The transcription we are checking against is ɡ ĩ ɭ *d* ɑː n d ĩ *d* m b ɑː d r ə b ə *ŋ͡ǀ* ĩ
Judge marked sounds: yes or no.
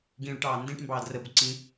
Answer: no, no, no

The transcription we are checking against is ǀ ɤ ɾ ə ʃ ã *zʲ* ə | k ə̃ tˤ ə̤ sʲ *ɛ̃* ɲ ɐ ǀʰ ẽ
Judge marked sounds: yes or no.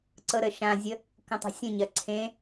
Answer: yes, no

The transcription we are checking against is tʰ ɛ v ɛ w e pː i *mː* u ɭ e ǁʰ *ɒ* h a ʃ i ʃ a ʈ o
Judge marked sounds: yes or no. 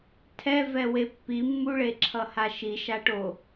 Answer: yes, no

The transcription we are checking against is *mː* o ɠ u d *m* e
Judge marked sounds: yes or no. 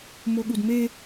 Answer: no, yes

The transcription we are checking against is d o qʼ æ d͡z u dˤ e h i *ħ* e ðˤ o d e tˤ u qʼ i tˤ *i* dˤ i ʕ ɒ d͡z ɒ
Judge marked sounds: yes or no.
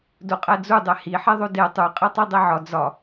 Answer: yes, yes

